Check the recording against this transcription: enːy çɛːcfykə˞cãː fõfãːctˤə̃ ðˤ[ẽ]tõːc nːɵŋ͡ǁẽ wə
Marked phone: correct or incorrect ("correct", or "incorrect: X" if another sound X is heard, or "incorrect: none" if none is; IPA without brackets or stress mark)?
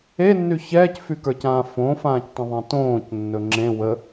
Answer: correct